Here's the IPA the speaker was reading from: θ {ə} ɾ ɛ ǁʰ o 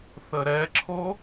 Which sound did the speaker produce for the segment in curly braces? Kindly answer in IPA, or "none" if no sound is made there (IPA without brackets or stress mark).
ə